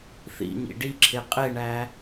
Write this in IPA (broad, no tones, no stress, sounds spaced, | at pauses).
θ ḭ ɲ ḭ ɖ i ǁʰ e qʼ e ɳ æ